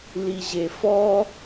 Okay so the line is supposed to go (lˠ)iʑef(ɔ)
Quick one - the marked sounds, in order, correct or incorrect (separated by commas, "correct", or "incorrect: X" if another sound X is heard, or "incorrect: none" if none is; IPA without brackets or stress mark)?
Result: incorrect: l, correct